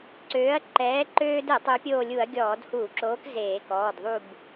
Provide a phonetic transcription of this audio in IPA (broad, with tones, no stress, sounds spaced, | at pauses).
ǀ øː˨˥ ɐ̯ ǃ ɛː˨˥ ǃ øː˦ d ɛ˧˩˧ tˤ ø˨˥ pʲ oː˦˨ lʲ u˧˩˧ ɐ̯ ɡʲ ɔː˧˩˧ d h uː˧˩˧ ǁ oː˨˥ k z eː˧˩˧ k ɔː˩˧˩ d ðˤ u˦˨ b